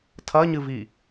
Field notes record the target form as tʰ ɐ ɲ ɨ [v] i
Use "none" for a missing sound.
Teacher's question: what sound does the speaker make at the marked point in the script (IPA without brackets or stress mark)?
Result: v